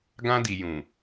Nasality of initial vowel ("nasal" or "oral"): nasal